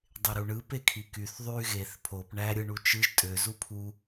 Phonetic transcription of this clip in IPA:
dˤ e ɾ u ɳ ɯ p e kʰ i k y θ ðˤ y ɣ e θ pʰ o p ɳ æ ɾʲ ɯ ɳ u t͡ʃ ɯ ʒ tʼ ø z u pʰ u

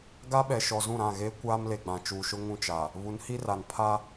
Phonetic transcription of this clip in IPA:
ɡ a˦ ɓ ɛ˨ ʃ ɔ˨ z ũ˦˨ ɾ ã˦˨ ɣ eː˦ kʷ aː˦ m l e˨ ɡ͡b ã˨ t͡ʃ uː˨ ʃ ʊ˦ ŋ ũ˦ t͡ʃ a˨ | β u˨˦ n h i˦ r a˨ n pʰ a˦

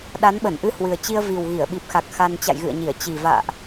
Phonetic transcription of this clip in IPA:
ɗ a˨˦ n ɓ ə˧˩ n ʔ ɨ˧ h w ɨ˨˩ ə̯ t͡ɕ i˧ ə̯ v i˨˩ w ɣ i˧˩ ə̯ ɓ i˨˩ p̚ x a˨˩ k̚ x a˧ n t͡ɕ a̰˧˨ j ɣ ɨ̰˧˨ ə̯ ɲ i˧˩ ə̯ t͡ɕ i˨˩ v a̰ː˧˨ ʔ

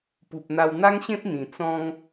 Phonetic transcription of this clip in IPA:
p u˨ p̚ n̪ a˧ w n̪ a˦ ŋ ɕ ẽ˦ p̚ n̪ ĩ˨˩ t͡s ɔ̃˦ ŋ

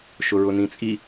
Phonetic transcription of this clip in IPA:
ʃ ʊ ɹ ʊ n ĩ t͡sʼ i

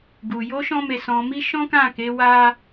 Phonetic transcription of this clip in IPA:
ɡ u˨ j o˧ ʃ ɔ̃˦ m e˧ s ɔ̃˧ m i˦ ʃ ɔ̃˦ k ã˦˨ k e˨˦ w a˦

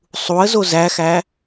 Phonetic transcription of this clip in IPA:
sˤ u ə̯ z o z æ x æ

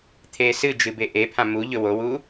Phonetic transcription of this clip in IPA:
t̪ʰ eː s ɨ d͡ʒ ɨ b e ʔ e pʰ ã m u ʎ ɵ w o w uː

